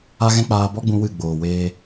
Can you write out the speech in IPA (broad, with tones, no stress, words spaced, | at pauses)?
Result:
a˦ɣɛ̃˦k͡paː˧ bɔ˦ɡ͡bũ˧ wɨ˦˨ ɡ͡boː˨weː˧